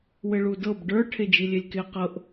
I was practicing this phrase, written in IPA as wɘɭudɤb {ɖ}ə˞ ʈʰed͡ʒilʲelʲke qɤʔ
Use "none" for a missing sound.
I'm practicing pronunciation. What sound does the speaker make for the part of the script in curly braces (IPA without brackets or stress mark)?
ɖ